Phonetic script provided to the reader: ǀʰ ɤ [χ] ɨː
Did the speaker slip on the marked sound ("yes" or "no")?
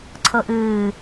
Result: yes